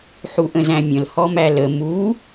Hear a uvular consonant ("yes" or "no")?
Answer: no